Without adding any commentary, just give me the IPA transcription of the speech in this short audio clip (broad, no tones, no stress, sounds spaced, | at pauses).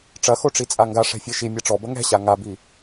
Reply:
ʈ͡ʂ ɐ x o ʈ͡ʂ i t͡sʼ a ŋ ɡ a ʂ ɛ̤ fʲ e ʃ i mʲ a ʈ͡ʂ ɔ b ɐ ŋ ɛ̤ ɕ a ŋ a b i